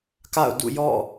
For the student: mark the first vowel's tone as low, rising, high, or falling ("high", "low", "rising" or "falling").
falling